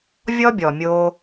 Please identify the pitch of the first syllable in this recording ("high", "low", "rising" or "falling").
high